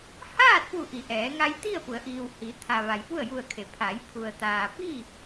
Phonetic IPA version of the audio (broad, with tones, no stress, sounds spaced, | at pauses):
h aː˥˨ t̚ p u˧˩ ʔ i˩˧ ʔ ɛː˩˧ ŋ a˧ j t̪ i˥˨ ə̯ p u˩˧ ə̯ ʔ iː˩ w h i˩˧ t̪ʰ a˩ ʋ a˩ j p u˥˨ ə̯ j u˧˩ ə̯ kʰ e˩˧ pʰ a˩˧ j pʰ u˩ ə̯ t̪ aː˩ p i˥˨